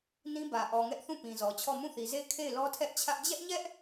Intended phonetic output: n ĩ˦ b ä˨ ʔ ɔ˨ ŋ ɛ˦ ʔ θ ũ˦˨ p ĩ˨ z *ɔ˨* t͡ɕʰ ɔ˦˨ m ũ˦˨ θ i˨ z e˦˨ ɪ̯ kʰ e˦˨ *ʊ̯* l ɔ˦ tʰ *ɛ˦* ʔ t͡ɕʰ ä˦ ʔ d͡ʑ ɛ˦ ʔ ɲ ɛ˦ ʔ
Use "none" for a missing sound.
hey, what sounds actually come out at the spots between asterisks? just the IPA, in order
ɔ˨, ɪ̯, ɛ˦

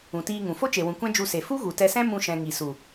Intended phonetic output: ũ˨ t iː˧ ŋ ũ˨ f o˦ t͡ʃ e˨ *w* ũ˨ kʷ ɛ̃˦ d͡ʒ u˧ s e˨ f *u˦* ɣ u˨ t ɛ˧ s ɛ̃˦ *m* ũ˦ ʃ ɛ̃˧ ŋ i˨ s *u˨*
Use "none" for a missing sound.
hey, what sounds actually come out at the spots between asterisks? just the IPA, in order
w, u˦, m, u˨

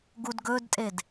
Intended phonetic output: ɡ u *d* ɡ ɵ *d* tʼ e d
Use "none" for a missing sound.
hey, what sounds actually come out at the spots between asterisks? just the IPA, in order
d, d

